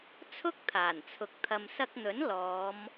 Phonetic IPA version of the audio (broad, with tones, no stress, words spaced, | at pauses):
t͡sʰʊ˥k̚t̪ʰaː˨˩nt͡sʰʊ˨k̚ t̪ʰɐ˨msɐ˧k̚n̪ɵ˨˥n lɔː˨˧m